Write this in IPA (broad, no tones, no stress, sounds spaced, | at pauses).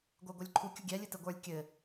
ɡʷ ə˞ ɡʷ ə˞ lʲ ǃʰ u kʲ u ɡʲ ɛ lʲ ɨ t ɘ ɡʷ ə˞ lʲ kʲ ɘ